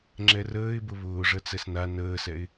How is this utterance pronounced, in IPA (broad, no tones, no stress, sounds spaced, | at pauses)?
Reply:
ŋ͡ǁ ɛ r əː ɪ̯ b ʊ β ʊː ʐ ɐ t͡s ɛ s n a n əː s ɛ ɪ̯